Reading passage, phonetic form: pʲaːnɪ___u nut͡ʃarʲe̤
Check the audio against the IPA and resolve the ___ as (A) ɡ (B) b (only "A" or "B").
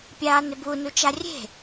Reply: B